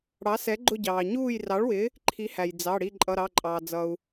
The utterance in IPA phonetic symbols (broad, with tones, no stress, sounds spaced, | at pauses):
ɽ ɑ˨˥ s ɛ˨˥ ɡ͡ǃ ʊ˦˨ ɟ ɑː˩ ɲ uː˦˨ j r ɑ˨˥ ɭ w ɪ˨˥ | ǃʰ i˨˥ h æ˩ j d͡z ɑ˩˧˩ ɽ i˦˨ ǃʼ ʌ˩˧˩ ɾ ɑ˩˧˩ ǃʼ ɑː˩ d͡z ʌ˩ u̯